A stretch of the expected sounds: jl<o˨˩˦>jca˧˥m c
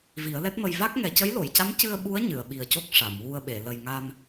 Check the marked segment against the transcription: incorrect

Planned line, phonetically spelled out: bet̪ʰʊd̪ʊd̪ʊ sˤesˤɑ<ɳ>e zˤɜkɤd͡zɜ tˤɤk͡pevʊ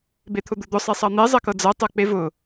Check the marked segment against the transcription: incorrect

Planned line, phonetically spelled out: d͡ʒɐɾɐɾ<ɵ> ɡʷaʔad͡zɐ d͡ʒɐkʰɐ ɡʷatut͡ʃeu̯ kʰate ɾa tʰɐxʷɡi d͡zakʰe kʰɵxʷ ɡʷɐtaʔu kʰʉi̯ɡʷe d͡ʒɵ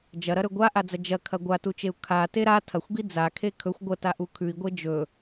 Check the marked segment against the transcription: correct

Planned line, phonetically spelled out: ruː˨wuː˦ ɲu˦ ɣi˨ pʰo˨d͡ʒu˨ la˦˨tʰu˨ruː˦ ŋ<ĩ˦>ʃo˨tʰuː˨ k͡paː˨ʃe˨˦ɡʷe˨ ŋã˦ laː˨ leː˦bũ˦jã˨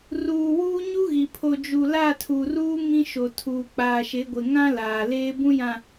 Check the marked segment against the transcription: correct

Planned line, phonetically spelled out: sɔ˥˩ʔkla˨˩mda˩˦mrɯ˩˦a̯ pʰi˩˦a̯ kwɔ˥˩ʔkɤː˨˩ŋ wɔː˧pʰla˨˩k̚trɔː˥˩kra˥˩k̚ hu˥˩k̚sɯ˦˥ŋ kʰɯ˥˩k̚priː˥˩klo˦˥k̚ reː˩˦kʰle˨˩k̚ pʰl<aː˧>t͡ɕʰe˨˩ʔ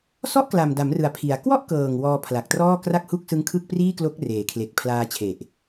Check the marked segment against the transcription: correct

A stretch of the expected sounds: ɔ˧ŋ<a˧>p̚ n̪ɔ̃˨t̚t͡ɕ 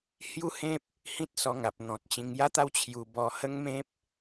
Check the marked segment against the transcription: incorrect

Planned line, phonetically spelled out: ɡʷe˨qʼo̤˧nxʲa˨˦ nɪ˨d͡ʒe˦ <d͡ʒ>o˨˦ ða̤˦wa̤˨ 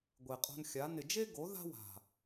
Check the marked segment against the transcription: incorrect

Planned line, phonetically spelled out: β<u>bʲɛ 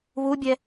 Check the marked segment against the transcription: correct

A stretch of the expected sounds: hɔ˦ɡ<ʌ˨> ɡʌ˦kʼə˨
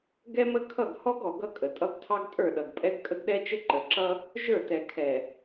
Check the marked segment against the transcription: incorrect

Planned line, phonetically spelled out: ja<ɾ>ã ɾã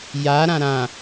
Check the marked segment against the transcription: correct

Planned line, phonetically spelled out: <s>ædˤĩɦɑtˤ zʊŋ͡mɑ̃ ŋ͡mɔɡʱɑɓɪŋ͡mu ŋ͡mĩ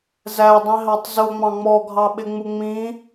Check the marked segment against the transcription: incorrect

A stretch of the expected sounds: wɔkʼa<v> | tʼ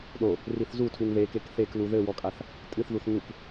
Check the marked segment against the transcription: incorrect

